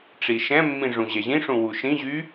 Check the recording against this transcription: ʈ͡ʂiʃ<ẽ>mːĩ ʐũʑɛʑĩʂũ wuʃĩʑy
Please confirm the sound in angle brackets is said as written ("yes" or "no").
no